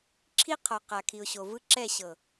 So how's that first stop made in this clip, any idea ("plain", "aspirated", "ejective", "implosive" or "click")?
click